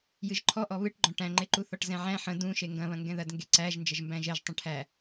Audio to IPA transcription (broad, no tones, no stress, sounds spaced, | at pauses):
j ɨ ʒ ǃʰ ɔ ʔ ɔ β ɨ ʈ ɡ͡ǃ ɔ̃ ʈ æ̃ ŋ͡ǃ e ǃ u θ ɔ ʈ z ɛ̃ ʕ æ̃ ħ ə̃ d ũ ʃ e ŋ ɡ ɐ̃ β ɐ̃ ŋ ɡ ɛ̃ ð ɐ d ŋ ɡ e ǀ æ ʒ n d͡ʒ ə ʒ m b æ̃ ʒ ɛ ʒ tˤ ə̃ ʈʰ æ